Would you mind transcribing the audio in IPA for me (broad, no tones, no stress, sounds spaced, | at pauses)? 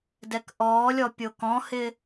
d ɛ k ʔ ɔː lʲ ɔ pʲ o k ɔ̃ h ɪ